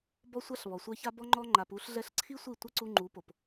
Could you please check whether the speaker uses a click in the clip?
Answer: yes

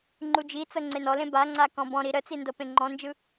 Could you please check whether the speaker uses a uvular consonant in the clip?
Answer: no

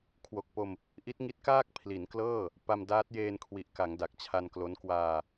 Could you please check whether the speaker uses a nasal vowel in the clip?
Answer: no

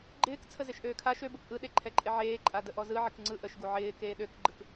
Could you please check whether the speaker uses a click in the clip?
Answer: yes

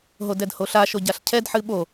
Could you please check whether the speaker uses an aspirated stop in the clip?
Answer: yes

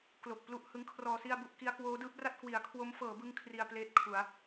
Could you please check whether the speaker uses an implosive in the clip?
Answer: no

